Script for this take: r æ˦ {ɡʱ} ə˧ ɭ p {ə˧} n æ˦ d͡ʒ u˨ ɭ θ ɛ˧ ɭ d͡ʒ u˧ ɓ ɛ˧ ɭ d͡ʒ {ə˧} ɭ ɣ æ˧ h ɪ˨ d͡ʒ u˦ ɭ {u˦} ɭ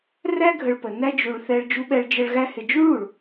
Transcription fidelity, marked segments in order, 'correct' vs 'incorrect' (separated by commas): correct, incorrect, correct, incorrect